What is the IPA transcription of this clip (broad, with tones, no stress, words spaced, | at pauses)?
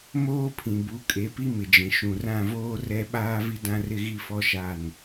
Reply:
moː˦pʰĩ˨bu˨˦ kʼe˨˦pi˦mɪ˨d͡ʒĩ˨ ʃũ˨rã˦˨voː˦ rɛ˦ ɓaː˦vi˦dã˦rɪ˦ ɣi˦fɔ˦ʃa˦˨n